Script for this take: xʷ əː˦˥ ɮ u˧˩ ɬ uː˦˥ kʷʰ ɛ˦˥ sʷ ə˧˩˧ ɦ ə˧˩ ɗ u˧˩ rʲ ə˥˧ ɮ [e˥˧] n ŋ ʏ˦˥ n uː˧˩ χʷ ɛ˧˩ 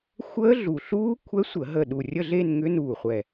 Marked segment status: correct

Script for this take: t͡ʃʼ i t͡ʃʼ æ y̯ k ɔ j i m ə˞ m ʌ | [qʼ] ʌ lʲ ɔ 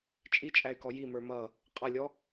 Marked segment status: correct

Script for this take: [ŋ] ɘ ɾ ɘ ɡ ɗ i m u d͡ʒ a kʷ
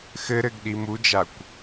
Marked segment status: incorrect: x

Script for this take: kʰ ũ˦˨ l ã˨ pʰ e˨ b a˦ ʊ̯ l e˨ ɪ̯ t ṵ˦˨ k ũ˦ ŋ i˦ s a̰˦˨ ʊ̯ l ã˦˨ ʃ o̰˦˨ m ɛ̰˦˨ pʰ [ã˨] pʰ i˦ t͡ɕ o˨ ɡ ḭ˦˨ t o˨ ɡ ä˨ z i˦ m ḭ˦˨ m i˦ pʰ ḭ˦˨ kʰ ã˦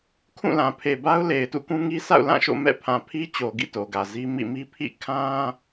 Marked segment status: correct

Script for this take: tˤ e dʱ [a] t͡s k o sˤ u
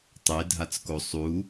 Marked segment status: correct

